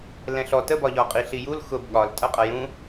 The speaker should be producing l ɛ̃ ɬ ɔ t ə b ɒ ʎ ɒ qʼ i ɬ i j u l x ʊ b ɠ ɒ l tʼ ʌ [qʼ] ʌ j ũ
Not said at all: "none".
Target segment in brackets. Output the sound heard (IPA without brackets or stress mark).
qʼ